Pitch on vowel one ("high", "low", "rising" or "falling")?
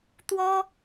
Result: high